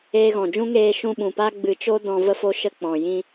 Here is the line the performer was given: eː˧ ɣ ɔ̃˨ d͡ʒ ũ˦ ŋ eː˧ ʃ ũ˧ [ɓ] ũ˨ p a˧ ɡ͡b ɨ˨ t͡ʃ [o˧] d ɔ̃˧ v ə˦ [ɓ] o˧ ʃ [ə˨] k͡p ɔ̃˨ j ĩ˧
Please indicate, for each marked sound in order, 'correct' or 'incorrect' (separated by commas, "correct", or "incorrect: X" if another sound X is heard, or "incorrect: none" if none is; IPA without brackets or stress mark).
correct, correct, incorrect: f, incorrect: ə˧